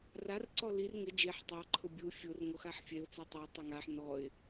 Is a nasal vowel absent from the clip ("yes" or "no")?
yes